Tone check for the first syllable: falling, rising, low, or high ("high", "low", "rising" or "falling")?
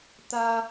high